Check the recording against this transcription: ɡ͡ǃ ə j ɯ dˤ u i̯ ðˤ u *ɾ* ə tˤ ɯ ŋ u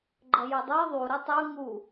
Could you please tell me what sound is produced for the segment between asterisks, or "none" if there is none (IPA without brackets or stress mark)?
ɾ